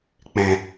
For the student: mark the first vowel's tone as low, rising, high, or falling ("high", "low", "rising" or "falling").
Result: low